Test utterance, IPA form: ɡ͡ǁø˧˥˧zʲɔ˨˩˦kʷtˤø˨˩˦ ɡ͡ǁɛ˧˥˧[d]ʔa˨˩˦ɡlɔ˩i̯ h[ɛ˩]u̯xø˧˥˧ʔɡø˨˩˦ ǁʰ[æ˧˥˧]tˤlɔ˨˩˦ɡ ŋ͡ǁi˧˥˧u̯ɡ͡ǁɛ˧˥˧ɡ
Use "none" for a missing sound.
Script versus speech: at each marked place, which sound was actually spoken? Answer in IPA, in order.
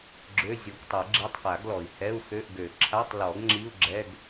tˤ, ɛ˧˥˧, a˧˥˧

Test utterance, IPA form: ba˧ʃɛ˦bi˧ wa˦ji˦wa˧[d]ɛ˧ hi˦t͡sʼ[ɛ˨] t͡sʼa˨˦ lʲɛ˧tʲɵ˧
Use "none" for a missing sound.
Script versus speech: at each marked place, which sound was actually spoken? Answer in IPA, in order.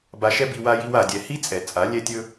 dʲ, ɛ˨

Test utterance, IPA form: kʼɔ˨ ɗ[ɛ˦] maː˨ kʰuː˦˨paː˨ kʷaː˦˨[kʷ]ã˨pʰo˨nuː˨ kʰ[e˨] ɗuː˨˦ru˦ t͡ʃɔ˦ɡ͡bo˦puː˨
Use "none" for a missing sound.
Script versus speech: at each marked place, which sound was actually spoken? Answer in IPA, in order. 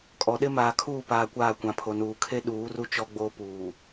ɪ˦, kʷ, e˦

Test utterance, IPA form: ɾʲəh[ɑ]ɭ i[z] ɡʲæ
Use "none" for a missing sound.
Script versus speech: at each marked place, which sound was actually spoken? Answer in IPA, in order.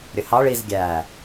ɑ, z

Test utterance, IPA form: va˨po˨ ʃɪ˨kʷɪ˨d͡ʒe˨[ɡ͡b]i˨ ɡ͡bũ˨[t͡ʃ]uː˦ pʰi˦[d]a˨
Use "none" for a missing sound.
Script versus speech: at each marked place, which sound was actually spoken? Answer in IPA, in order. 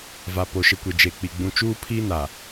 k͡p, t͡ʃ, n

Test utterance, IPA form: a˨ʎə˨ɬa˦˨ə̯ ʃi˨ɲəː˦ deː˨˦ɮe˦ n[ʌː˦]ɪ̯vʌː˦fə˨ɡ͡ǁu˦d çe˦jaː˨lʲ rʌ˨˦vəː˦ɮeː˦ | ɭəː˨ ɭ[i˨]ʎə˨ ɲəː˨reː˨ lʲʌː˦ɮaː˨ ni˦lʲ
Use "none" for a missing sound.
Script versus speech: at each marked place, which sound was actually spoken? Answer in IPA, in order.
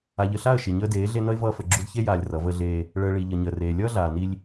ʌ˦, i˨

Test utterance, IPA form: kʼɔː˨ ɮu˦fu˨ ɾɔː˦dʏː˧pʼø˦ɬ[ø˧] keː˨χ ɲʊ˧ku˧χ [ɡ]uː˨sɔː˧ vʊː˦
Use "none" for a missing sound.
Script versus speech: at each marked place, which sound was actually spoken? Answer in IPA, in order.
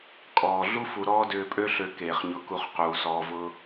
ø˧, q

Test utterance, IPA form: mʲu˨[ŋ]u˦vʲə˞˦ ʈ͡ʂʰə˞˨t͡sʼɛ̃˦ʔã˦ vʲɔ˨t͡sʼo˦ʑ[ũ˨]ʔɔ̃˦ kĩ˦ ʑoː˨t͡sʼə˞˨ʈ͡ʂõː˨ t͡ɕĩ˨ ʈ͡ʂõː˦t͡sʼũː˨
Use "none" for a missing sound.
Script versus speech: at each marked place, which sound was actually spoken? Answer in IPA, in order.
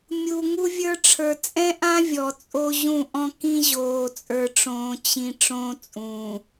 ŋ, ũ˦˨

